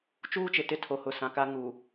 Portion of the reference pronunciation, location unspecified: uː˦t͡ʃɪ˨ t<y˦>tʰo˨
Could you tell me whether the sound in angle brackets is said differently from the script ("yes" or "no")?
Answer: yes